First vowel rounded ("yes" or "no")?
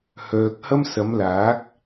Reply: yes